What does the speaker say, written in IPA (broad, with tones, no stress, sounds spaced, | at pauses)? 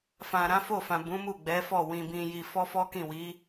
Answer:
f ã˨ ɾ ã˨˦ f o˦˨ f ã˨ b ũ˨˦ m u˦˨ ɡ͡b ɛ˨˦ f ɔ˦˨ w ĩ˧ b ĩ˧ j i˧ f ɔ˦ f ɔ˦ k ĩ˦˨ w i˨˦